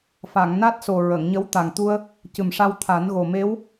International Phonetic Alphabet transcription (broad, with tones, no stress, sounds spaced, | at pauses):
f a˨˩˨ ŋ n a˦˥ t̚ s o˨˩ ɹ ə˨˩˨ ŋ ɲ ə˧˥ w t̪ a˨˩ ŋ t̪ u˧ ə̯ | c ɨ˨˩ m ʂ a˧ w t̪ʰ a˨˩˦ n ɣ o˨˩ m e˧˥ w